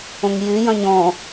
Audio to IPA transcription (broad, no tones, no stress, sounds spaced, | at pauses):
õ ŋ j y j ɐ̃ ɲ ɔ̃